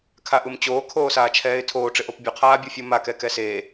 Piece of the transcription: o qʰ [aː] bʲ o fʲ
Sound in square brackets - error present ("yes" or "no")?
no